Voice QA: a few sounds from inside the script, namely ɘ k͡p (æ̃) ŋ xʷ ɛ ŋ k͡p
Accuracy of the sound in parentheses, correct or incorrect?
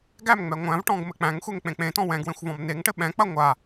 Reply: correct